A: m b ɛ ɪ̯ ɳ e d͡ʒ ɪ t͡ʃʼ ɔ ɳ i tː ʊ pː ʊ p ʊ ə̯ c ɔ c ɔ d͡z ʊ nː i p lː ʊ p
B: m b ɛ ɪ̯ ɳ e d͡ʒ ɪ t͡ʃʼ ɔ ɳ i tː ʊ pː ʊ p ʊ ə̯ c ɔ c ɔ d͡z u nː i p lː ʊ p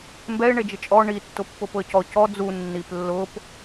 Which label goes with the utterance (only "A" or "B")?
B